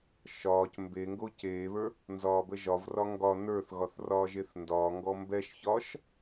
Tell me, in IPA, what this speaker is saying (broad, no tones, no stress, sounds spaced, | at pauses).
ʃ ɒː c m b e ŋ ɡ o c eː β ə˞ | n z ɒː b ə ʒ ɒ v r ɒ ŋ ɡ ɒ n ə˞ θ ɣ ɒ θ r ɒː ʒ e θ n d ɒː ŋ ɡ ɔ m b ɛ ʃ ç ɒː ʃ